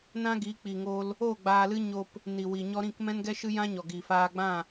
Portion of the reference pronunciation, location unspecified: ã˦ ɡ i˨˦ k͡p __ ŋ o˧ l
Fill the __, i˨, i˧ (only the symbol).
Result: i˨